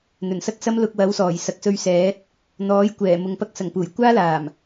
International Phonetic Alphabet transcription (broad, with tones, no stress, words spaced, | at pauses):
n̪ɵ˨˩n sɐ˥k̚sɐ˥m lʊ˧k̚wɐ˨˥wsɔː˨˩j sɐ˨k̚sɵ˧ɥsɛː˨˥t̚ | n̪ɔː˨˥jkʷɛː˨˩ mʊ˨ŋpɐ˥k̚sɐ˨˩ŋpuː˨˩j kʷaː˥laː˨˩m